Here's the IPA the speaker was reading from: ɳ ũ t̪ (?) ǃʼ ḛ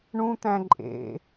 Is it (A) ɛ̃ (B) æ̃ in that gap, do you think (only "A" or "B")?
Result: B